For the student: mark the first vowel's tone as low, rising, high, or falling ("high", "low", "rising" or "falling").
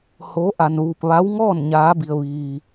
rising